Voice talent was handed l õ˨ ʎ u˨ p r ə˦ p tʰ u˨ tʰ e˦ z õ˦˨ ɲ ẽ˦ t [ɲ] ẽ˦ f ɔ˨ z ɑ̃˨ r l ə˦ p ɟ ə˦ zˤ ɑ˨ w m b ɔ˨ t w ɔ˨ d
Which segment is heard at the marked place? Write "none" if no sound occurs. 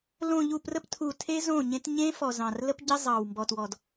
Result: ɲ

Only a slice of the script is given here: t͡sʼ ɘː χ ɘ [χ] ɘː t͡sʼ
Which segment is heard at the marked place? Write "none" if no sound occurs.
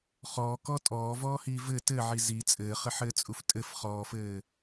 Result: ħ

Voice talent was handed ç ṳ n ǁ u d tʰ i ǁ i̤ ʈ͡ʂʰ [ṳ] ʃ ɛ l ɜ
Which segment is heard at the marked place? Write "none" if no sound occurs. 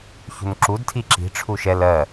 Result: u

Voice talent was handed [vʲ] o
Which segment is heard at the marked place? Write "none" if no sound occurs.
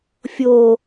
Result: fʲ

